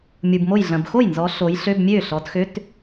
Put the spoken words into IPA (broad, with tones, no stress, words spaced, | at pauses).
mʲu˨bmo˥˩j ɮɐ̃˨bxo˥˩j nzɔ˨˦ ɬo˨˦j ɬø˧˥˧bmʲø˥˩ɬɔ˨˦t xø˧˥˧t